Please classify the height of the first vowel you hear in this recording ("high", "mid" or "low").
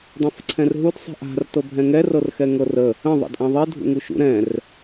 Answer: low